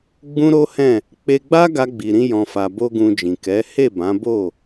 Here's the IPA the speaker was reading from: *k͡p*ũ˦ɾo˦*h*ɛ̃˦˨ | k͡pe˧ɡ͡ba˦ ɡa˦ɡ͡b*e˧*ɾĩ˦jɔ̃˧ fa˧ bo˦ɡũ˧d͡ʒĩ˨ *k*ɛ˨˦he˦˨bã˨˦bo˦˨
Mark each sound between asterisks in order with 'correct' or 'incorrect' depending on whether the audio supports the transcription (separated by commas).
incorrect, correct, incorrect, correct